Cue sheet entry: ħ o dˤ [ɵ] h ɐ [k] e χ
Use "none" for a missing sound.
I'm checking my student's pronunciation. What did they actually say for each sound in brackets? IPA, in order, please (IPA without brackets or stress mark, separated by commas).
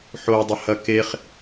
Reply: ɵ, k